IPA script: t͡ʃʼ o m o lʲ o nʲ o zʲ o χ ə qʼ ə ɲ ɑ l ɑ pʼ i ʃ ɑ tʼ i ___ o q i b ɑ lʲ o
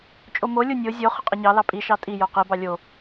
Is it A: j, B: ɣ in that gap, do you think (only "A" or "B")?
A